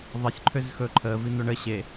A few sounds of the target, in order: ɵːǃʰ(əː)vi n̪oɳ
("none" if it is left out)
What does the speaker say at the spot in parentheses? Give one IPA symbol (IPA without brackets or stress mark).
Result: əː